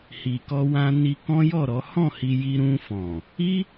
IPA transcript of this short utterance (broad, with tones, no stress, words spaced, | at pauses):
hi˨kɔ˧wã˧ ni˧kɔ̃˦jɔ˦˨ɾɔ˨˦ hɔ̃˦˨hi˧ ji˧ɾũ˧fɔ̃˨ | i˦